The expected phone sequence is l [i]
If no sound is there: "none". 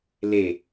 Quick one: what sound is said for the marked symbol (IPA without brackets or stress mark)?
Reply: e